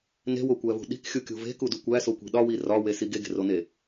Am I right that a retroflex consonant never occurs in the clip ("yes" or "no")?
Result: yes